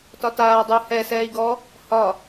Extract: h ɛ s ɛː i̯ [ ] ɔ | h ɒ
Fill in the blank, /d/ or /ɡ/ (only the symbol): ɡ